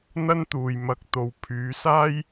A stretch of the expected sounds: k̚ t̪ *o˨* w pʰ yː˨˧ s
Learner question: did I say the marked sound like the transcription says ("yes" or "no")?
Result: yes